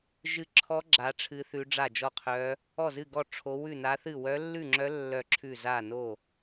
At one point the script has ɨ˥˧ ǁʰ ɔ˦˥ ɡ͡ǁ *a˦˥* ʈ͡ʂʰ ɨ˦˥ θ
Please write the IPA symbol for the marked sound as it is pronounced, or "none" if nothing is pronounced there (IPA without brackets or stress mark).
a˦˥